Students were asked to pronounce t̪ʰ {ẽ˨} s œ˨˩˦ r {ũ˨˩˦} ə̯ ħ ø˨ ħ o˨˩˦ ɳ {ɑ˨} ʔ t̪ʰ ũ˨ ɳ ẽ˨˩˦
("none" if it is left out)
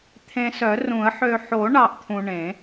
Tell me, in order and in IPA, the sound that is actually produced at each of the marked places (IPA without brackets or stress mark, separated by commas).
ẽ˨, ũ˨˩˦, ɑ˨